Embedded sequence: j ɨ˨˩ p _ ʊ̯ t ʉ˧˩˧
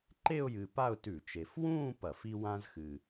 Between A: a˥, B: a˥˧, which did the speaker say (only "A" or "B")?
B